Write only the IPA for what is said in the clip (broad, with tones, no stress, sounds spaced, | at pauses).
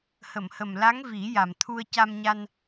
h ə˨˩˨ m h ə˨˩ m l a˧˥ ŋ v i˨˩˦ j a˨˩ m t̪ʰ u˧ ə̯ c a˧ m ɲ a˧ n